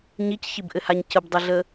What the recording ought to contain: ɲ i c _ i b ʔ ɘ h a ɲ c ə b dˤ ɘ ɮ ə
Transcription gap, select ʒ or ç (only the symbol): ç